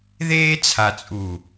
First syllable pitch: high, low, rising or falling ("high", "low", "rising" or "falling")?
high